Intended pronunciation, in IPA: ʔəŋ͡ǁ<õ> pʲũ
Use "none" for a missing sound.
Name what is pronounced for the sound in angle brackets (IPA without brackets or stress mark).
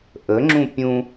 ũ